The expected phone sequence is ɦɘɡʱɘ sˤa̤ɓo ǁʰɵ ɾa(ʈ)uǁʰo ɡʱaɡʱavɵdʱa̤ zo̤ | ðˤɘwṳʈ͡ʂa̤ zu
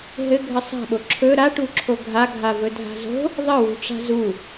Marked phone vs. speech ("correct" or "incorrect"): correct